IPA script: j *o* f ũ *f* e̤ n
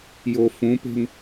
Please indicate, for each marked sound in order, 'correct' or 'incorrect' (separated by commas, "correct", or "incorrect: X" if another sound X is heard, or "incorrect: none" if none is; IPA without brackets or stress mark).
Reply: correct, incorrect: p